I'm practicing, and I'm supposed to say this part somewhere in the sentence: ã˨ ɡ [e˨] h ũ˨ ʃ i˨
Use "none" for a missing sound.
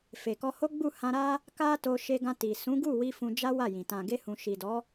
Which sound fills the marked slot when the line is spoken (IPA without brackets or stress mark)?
e˧